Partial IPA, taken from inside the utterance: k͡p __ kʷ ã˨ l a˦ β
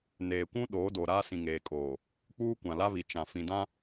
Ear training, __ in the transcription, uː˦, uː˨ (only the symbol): uː˦